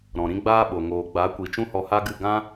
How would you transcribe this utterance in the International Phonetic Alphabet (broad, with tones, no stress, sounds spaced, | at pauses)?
ɾ ɔ̃˨ ɾ ĩ˦ ɡ͡b aː˦ ɓ o˨ ŋ oː˨ ɡ͡b a˨˦ kʷ i˨ t͡ʃ ũ˦ h ɔ˧ h a˦ ɡ ɨ˦˨ ɡ ã˦